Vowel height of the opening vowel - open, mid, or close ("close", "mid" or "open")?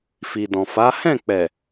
close